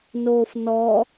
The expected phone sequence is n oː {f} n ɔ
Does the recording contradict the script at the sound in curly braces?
no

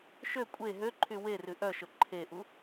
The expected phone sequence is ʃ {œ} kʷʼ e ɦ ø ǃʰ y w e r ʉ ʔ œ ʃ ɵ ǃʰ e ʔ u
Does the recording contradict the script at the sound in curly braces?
yes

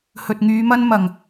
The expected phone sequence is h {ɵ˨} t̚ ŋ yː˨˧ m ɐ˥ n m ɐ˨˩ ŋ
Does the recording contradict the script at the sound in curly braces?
no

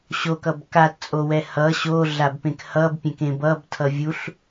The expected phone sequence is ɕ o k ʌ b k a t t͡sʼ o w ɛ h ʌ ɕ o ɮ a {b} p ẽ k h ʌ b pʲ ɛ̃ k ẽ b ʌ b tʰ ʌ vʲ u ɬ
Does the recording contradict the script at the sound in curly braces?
no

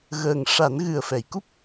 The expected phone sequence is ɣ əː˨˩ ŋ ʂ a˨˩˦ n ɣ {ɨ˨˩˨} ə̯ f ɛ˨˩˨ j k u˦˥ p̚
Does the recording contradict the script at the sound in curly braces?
yes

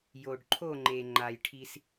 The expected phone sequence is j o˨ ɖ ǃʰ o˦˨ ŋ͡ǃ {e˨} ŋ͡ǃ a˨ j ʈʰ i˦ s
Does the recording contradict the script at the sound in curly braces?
no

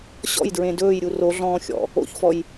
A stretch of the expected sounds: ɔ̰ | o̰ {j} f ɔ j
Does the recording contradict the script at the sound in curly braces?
yes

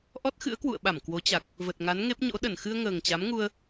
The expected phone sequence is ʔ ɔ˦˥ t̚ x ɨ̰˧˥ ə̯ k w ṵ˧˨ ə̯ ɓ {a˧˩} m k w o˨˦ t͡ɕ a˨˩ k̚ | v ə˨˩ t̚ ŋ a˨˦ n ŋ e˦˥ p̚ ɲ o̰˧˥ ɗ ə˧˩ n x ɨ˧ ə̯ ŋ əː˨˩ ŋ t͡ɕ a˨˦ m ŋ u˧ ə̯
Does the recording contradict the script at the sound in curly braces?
no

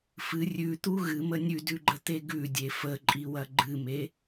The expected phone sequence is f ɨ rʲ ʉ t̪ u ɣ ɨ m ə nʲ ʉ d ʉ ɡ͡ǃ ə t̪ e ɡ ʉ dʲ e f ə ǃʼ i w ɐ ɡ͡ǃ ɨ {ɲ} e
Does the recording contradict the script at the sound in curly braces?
yes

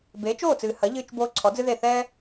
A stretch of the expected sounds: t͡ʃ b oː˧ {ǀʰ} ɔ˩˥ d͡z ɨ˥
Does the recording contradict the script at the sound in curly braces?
no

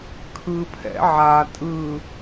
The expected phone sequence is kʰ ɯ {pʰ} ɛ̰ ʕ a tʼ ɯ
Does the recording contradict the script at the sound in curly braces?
no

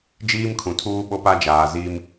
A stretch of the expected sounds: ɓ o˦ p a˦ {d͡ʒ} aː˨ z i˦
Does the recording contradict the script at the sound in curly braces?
no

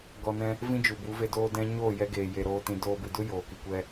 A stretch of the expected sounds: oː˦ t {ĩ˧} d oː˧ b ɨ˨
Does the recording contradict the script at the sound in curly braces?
no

